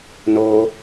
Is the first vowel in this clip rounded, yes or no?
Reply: yes